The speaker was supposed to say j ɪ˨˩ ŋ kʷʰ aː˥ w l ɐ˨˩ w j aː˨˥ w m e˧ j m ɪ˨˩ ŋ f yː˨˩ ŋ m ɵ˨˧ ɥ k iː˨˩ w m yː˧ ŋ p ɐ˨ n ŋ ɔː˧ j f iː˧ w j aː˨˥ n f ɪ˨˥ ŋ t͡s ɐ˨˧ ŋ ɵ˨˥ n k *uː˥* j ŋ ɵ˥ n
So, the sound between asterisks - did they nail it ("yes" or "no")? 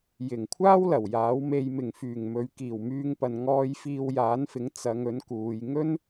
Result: no